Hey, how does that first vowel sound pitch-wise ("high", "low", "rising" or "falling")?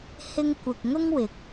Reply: high